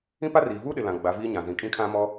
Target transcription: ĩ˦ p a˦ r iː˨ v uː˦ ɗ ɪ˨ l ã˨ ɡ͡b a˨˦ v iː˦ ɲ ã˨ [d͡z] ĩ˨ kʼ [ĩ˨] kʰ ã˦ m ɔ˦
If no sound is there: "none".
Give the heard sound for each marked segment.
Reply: z, ĩ˦

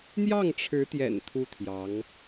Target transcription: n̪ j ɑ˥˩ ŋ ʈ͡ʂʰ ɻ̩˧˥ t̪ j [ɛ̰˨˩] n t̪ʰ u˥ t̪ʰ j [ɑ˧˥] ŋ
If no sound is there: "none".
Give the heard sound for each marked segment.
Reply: ɛ̰˨˩, ɑ˧˥

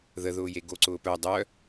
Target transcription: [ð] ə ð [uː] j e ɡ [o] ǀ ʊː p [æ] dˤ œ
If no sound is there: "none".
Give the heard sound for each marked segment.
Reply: ð, ʊː, o, œ

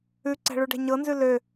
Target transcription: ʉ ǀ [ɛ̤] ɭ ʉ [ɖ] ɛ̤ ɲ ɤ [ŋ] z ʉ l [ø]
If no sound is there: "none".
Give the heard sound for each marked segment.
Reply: ɛ̤, ɖ, n, ø

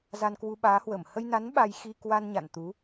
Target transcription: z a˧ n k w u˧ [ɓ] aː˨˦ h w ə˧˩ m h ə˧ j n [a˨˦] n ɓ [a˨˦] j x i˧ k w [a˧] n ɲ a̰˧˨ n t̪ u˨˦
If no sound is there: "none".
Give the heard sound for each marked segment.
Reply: ɓ, a˨˦, a˧, a˧

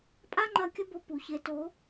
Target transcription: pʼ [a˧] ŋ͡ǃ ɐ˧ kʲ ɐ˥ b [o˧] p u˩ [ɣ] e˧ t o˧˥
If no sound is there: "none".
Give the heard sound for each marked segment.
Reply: a˥, o˧, ç

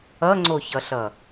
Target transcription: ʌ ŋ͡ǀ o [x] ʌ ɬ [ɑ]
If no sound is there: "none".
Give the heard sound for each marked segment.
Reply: ç, ʌ

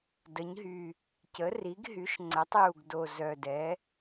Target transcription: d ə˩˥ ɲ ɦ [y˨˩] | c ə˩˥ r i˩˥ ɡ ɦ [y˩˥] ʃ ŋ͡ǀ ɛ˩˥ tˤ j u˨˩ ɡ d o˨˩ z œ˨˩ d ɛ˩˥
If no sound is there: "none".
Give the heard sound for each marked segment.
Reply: y˨˩, y˩˥

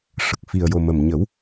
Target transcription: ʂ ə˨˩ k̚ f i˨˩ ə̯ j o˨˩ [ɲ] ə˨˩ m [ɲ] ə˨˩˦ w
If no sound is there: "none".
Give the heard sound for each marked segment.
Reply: m, ɲ

